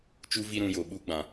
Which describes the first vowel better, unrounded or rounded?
rounded